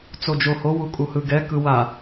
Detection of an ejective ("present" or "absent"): present